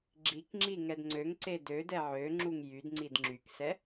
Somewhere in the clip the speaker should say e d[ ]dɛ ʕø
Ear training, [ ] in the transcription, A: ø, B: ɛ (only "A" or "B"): A